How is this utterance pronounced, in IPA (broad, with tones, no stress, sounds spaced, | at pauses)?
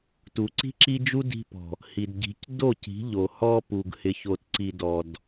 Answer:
t u˨ ǀ i̤˦ ǁ i˦ d͡ʒ u˦ d i̤˧ p ɔ̤˨ | h i˨ d ɟ i̤˨˦ c d o˦˨ c i̤˨˦ ʎ o˨ h ɔ˧ p u˨ ɡ h ɪ˨ ç o˨ t ǀ i˨ d ɔ˨ d